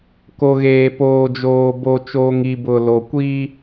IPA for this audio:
k o˨ ɣ eː˨ p oː˨ d͡ʒ oː˨ b o˨ t͡ʃ oː˨ ŋ i˨ b ʊ˨ l o˨ kʷ i˦

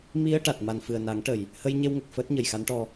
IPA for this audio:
m i˧ ə̯ ʈ a˨˩ t̚ m a˨˩ n f ɨ˨˩ ə̯ n a˨˩˦ ŋ ʈ ə˨˩ j | h ə˧ j ɲ e˧ w ŋ ə˨˩ k̚ f əː˦˥ t̚ ɲ ə˨˩ j x a˧˥ n ʈ ɔ˧

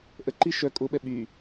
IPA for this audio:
ʔ ə ǃ i ʃ œ kʼ ʊ ɓ ɛ ɓ y

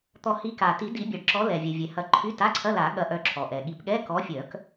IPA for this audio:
t̪ ɔ˨˩˦ h i˨˦ k a˩ t i˨˩˦ d i˨˩˦ bʲ ɐ˩ ɖ ǁ ɔ˨˦ l ɛ˩ vʲ ɛ˩ vʲ ɛ˩ h ɐ˨˦ ǃʰ y˧˥˧ t a˧˥˧ ǀʰ ɐ˧˥˧ l a˨˩˦ ɠ ɐ˨˦ ʔ œ˨˦ ǁʰ ɔ˩ ʔ ɛ˩ ɠ i˨˩˦ p ɠ ɛ˧˥˧ k ɔ˨˦ fʲ œ˨˩˦ k

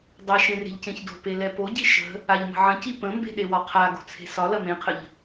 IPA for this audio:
dˤ ɐ ʃ ẽ r e̤ ʎ c ẽ ç d o̤ p e l ɛ p o ɟ i ʃ ə̤ | a ʎ m ə̤ ʕ ə̃ c i p ə̃ m b e̤ ɗ e w ɒ qʰ a ɡ o̤ t͡sʰ e̤ s ɒ l ɐ m ẽ qʰ ə ʎ

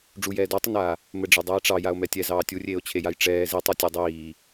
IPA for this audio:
ɖ͡ʐ u j ɛː d o tˤ i n aː | m ɘ ɖ͡ʐ e dˤ eː ʈ͡ʂ ɑ j a o̯ m ɛ tʲ ɛ z ɑː tʲ u rʲ eː o̯ t͡ɕʰ e j a j ʈ͡ʂ ɛː z i tˤ o tʲ e dˤ iː

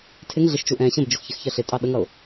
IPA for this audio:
tʰ ɪ ŋ ɮ ɪ ʃ t͡ʃ u ʔ ɛ̃ ɕ ə̃ b d͡ʒ ʊ x ç ɪ x ç ɜ ɬ ɪ tʼ ɑ ɗ ə ŋ ʌ ʊ̯

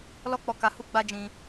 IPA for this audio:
l ɔ˦ k͡p ɔ˧ k a˧ h u˦ ɡ͡b a˦ d͡ʒ ĩ˧

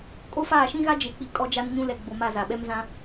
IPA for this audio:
kʼ o˦ f aː˦˨ ʃ ĩ˦ ɣ a˦ d͡ʒ e˨ k͡p i˨ kʼ ɔ˦ d͡ʒ a˦ n ɲ ũ˦ l ɛ˨ ɡ͡b o˨ m a˦˨ z a˨ ɓ ɛ˦ m z ã˦

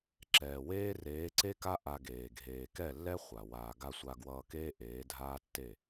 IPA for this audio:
ǁ ɛː˨ w eː˦ r eː˨˦ ǀ e˦ k a˦ ʔ a˧ ɡ eː˨ ɡʱ eː˨ k ɛ˦˨ lː ɛ˦ χʷ a˨ w aː˨ ɡ a˧ sʷ a˧ ɡ w ʌː˧ k eː˦ ʔ eː˨˦ dʱ aː˦ tː e˦˨

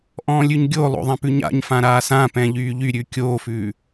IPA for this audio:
ʔ ɔ̃ː lʲ ʉ ɲ ɡʲ o lˠ o̰ ðˤ ã p ʉ ɲ a̰ ɲ f ã ɾ aː s ã p ɛ̃ ʎ yː ʎ y ɾʲ ʉ kʲ oː f ʉː

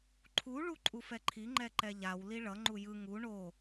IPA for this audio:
ǃʰ u ɭ u ǃʼ u f ɛ ǃʰ i ŋ͡ǃ ɛ ǃ ɛ ʎ a w l i ɭ ʌ ŋ͡ǃ u j ɯ ŋ u ɳ o

